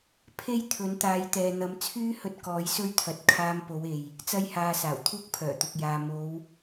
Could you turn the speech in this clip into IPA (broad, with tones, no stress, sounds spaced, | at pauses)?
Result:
pʰ e˥ j t̪ʰ ɵ˨˥ n t̪ aː˨˧ j t̪ ɛː˨ n̪ ɐ˨˥ m t͡sʰ yː˥ h ɵ˧ t̚ k ɔː˨˥ j s ɵ˥ ɥ t̪ʰ ɐ˨ t̚ kʰ aː˧ m p o˨˧ w e˨ j | t͡s ɐ˧ j h aː˨ s aː˨˩ w t̪ʰ uː˥ k̚ pʰ œː˨˩ t̪ ʊ˨ k̚ j aː˨ m o˨˧ w